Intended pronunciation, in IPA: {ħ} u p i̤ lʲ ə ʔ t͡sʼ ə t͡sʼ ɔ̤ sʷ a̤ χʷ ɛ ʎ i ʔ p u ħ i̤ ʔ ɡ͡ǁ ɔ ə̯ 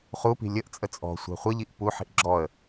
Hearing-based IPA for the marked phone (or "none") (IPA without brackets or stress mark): χ